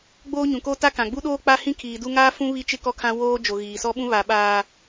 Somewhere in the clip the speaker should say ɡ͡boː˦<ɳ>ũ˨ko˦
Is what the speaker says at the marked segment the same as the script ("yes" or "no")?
no